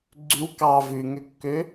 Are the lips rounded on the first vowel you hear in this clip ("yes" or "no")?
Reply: yes